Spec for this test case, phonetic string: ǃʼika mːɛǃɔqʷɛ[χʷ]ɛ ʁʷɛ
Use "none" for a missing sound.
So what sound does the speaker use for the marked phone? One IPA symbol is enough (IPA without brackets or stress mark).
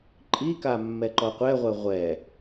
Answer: ʁʷ